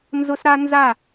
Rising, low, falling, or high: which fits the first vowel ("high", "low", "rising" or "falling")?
high